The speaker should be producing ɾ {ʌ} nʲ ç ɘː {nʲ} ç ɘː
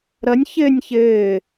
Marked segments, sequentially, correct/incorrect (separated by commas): correct, correct